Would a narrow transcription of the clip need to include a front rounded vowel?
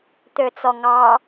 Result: yes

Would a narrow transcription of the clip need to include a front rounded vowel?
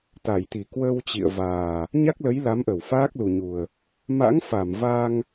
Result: no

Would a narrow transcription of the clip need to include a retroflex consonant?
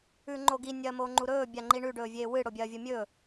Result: yes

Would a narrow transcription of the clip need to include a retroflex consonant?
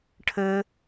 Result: yes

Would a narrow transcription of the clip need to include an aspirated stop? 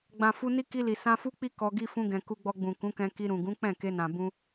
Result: no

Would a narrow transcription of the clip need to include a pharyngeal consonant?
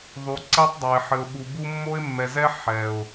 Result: yes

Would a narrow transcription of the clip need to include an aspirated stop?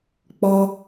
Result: no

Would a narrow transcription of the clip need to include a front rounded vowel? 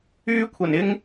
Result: yes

